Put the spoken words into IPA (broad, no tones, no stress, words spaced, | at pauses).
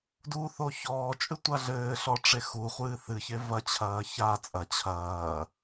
duθo çɔːt͡ʃʼɨ tʷaɮɘːɬɔ ʈ͡ʂexuχʷɨː θɨçe vɐt͡ɕʰɐː ça t͡sʼɐ t͡ɕʰɐː